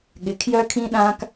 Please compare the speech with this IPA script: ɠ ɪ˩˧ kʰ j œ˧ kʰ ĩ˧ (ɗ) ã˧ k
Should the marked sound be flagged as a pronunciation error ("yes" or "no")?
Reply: no